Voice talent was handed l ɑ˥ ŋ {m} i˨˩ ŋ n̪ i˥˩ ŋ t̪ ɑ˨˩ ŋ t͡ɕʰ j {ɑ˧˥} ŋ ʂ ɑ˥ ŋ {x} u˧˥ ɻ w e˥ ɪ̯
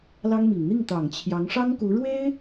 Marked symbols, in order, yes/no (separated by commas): yes, yes, no